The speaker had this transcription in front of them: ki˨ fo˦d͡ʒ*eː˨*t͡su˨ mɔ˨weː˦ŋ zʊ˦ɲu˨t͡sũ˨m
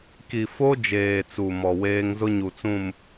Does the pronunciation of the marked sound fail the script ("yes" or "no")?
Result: no